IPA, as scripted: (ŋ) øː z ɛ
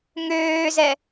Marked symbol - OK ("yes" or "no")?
yes